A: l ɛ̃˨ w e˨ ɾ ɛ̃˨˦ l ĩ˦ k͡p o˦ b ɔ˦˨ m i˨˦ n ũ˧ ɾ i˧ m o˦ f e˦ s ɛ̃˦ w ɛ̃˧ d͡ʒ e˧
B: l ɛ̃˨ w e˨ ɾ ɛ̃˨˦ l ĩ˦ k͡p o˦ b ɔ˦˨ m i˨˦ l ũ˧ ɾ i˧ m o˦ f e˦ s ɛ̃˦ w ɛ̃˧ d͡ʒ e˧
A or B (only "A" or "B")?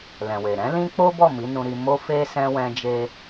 A